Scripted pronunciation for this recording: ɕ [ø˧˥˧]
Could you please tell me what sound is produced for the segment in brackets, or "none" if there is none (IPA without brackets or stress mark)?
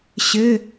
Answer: ɘ˧˥˧